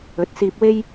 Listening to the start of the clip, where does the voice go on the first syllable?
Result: rising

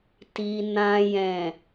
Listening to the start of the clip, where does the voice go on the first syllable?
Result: low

